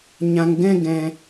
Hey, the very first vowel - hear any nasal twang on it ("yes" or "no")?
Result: yes